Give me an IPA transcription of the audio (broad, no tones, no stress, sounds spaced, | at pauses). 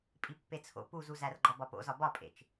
pʼ i pː e t͡sʰ o̰ p u z u z æ r ɡ͡ǃ ɒ b ɒ p o̰ z ɒ b ɒ pʼ ḛ t͡ʃ